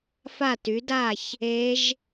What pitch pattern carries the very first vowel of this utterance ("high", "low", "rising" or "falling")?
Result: falling